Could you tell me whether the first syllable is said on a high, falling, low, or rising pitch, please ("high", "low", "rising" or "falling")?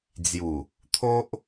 low